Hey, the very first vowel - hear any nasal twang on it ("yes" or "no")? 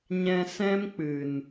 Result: yes